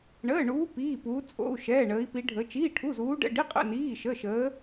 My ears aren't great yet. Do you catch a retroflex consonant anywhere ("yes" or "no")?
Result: yes